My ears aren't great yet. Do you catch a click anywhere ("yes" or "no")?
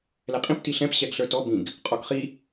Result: no